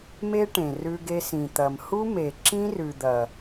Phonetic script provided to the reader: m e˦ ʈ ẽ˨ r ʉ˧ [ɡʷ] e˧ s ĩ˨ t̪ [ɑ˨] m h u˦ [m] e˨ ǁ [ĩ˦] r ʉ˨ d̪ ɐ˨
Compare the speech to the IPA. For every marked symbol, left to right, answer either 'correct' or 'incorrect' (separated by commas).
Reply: incorrect, incorrect, correct, correct